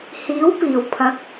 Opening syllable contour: rising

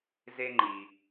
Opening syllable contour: high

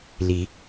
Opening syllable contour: rising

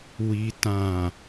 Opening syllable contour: low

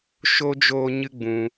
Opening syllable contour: high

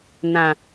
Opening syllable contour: low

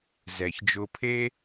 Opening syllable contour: low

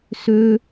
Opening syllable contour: high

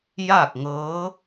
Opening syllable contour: falling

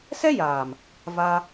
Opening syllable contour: high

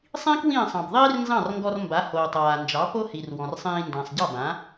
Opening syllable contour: high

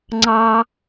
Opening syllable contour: high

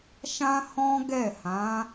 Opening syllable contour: high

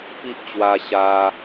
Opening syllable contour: high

